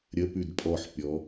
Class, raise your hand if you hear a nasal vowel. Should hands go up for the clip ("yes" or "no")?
no